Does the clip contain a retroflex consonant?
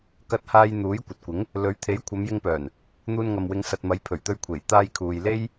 no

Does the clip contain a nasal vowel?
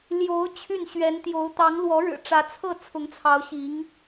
no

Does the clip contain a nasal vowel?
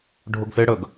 no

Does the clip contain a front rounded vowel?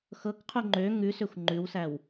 yes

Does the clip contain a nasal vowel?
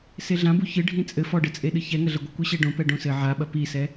yes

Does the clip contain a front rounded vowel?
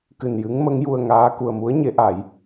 no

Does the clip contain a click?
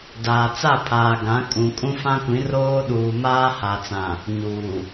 no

